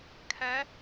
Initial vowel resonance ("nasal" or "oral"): oral